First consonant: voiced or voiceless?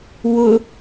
voiced